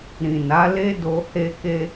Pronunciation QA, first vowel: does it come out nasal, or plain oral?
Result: nasal